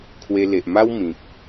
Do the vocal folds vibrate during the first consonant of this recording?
no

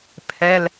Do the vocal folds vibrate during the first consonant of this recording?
no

